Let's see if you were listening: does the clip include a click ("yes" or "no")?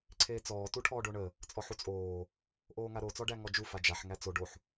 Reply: yes